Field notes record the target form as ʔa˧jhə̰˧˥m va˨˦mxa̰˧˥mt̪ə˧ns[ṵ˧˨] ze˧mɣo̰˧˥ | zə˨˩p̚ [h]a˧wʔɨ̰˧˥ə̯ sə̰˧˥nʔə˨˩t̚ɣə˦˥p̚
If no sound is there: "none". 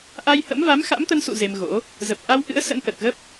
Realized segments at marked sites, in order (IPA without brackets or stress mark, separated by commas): ṵ˧˨, ʔ